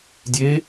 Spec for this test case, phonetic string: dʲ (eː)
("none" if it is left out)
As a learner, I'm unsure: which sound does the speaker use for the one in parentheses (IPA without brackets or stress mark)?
eː